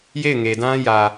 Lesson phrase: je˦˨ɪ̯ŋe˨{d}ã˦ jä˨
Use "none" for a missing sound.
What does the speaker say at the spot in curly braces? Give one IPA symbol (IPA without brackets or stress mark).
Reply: d